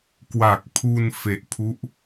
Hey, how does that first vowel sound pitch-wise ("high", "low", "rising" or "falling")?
low